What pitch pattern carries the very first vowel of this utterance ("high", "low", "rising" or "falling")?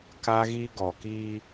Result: high